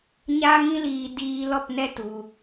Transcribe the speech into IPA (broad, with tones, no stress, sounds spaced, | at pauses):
ɲ aː˦ ŋ ĩ˦ l iː˧ d iː˧ l ɔ˦˨ p n ɛ˦ t u˧